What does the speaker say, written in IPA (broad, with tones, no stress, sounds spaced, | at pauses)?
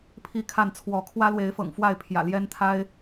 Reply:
pʰ i˥˨ kʰ a˥˨ n t͡sʰ w ɔ˨˦ kʰ w ä˦ l w e˨˦ ɪ̯ f ɤ̰˨˩ ŋ f w a˥˨ ɪ̯ pʰ j ä̰˨˩ l j ɛ˦ n t̪ʰ a˦ ɪ̯